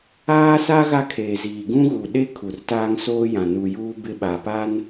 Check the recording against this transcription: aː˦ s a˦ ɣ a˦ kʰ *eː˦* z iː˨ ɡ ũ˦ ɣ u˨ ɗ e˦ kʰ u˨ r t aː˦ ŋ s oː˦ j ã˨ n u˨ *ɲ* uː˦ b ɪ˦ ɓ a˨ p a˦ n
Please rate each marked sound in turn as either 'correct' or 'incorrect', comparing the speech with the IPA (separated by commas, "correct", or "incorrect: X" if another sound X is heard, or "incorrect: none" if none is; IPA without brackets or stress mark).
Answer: incorrect: eː˨, incorrect: j